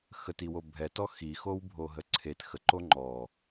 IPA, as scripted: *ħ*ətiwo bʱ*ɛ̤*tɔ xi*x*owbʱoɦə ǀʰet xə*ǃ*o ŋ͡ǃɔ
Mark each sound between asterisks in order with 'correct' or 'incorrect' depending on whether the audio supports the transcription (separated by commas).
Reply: incorrect, incorrect, correct, correct